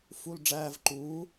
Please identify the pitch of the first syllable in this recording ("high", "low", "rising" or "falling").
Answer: low